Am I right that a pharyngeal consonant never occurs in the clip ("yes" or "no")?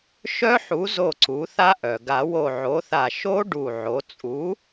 no